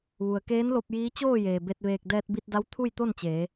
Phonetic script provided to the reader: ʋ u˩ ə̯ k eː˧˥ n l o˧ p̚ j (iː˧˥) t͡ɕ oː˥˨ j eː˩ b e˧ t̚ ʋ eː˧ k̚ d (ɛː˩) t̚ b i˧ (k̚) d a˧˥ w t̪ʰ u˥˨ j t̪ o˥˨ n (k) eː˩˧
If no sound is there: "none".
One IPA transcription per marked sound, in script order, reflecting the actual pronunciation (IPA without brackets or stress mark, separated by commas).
iː˧˥, ɛː˧, t̚, t͡ɕ